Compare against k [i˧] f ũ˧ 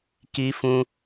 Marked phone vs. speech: correct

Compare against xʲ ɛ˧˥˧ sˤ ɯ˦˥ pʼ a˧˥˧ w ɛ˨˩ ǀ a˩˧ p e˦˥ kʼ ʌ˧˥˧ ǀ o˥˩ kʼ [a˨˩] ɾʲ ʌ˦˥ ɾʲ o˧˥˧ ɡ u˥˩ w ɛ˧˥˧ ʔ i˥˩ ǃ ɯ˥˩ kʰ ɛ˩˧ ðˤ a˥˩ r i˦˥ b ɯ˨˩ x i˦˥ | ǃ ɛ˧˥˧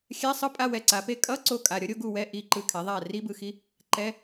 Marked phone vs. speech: correct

